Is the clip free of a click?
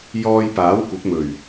yes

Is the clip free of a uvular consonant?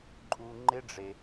yes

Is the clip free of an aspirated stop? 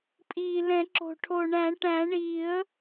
no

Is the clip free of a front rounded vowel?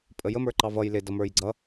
yes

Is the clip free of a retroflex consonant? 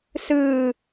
yes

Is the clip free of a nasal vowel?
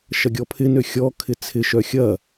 yes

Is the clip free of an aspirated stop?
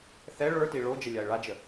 yes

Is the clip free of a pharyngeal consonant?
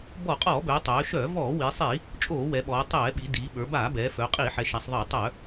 no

